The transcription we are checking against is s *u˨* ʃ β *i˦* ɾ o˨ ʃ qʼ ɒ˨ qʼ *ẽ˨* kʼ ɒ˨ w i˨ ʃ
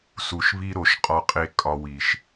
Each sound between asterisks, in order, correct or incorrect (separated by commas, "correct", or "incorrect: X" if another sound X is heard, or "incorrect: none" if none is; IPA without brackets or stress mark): correct, correct, incorrect: e˨